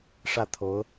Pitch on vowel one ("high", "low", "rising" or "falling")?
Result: falling